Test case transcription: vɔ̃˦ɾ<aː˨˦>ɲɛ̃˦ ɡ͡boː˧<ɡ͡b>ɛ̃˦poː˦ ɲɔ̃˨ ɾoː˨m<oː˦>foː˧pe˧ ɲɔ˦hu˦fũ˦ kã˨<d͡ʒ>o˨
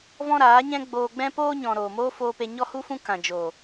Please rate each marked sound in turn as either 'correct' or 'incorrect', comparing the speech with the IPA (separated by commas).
correct, correct, correct, correct